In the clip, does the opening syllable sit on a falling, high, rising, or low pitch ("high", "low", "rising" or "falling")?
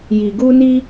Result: low